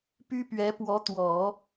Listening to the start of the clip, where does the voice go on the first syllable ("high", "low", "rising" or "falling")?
high